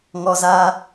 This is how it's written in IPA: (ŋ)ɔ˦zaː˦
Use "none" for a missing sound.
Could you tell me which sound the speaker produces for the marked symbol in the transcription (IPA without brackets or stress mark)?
ŋ